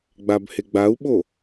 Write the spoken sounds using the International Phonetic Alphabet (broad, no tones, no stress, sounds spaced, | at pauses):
ɡ͡b a b h e ɡ͡b a u̯ ɓ o